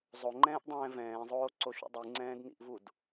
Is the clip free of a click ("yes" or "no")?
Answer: no